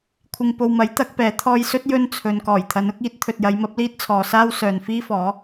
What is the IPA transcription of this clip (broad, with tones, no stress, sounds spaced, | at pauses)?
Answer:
kʷʰ ɪ˧ ŋ p o˨ w m ɐ˨˥ j t̪ ɐ˨˥ k̚ p ɛː˨˥ t̪ʰ ɔː˧ j s ɵ˥ t̚ j ɵ˥ n t͡sʰ ɵ˨ n k ɔː˨˩ j t̪ʰ ɐ˨˧ n ʊ˨˥ k̚ iː˥ t̚ t̪ʰ ɵ˨ t̚ j ɐ˨˧ j m ɐ˨˥ p̚ l iː˥ t̚ t͡sʰ ɔː˨ s aː˥ w s œː˨ n f iː˥ f ɔː˨˥